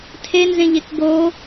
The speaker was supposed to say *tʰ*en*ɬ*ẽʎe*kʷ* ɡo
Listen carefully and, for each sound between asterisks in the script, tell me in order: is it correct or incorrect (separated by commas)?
correct, incorrect, incorrect